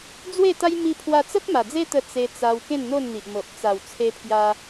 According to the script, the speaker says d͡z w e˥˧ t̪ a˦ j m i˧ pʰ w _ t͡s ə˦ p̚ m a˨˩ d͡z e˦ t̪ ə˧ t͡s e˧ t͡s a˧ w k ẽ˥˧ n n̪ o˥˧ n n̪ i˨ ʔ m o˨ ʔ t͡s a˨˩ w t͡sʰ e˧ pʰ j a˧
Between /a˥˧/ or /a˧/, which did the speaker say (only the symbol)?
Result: a˧